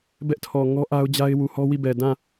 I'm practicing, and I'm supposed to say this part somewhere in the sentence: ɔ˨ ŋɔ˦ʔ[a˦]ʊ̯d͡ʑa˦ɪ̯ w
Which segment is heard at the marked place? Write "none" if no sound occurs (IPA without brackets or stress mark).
a˦